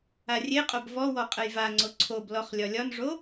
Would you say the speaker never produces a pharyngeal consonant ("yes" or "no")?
yes